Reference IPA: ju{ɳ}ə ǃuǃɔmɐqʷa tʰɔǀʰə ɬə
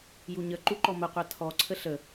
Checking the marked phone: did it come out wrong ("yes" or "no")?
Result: yes